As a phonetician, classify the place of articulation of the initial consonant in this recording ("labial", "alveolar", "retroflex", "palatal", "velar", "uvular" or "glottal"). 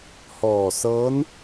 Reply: glottal